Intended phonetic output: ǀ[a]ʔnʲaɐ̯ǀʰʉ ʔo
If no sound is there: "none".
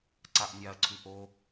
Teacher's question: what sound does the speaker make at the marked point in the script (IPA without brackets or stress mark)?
a